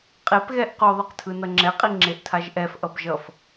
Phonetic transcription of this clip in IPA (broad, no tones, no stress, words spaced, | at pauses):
qʼepɣɛʔ qoðˤɛq tʰɯnʌŋ͡ǁɛqʼi ŋ͡ǁeʔtʰaʒʔɛfʔʌb ʒʌf